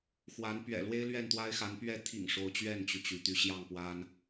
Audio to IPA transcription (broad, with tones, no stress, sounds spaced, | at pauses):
x w a˨˦ n p ɥ ɛ̰˨˩ l w e˦ ɪ̯ l ɥ ɛ˥˨ n t̪ w a˦ ɪ̯ x a˨˦ n p ɥ ɛ˥˨ t̪ʰ ḭ˨˩ ŋ ʂ o˨˦ ʊ̯ t͡ɕ ɥ ɛ˥˨ n t͡ɕ y˩ t͡ɕ y˩ t̪ y˨˦ ɕ j ɑ˥˨ ŋ p w a˦ n